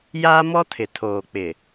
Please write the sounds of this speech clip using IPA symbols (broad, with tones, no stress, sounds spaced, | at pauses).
j aː˦ m ɔ˦ tʰ ɪ˨ tʰ oː˨ k͡p ɪ˨